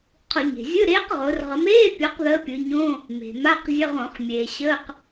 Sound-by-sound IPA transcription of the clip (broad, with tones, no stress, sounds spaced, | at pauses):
qʰ ʊ˧˩˧ ɲ e̤˩ zʲ ɯ˧˥˧ ɾ eː˧˥ q ʁ ʊː˩˧ r ʁ ə˩˧ m eː˧˥˧ pʲ ɒ˧˥ q ð əː˧˥ pʲ ɯ˩˧ ɲ õː˧˥˧ | m e̤˩ m a˧˥˧ q zʲ ə˧˥˧ ʁ õ˧˩˧ χ mʲ eː˩ ɕ əː˧˥˧ q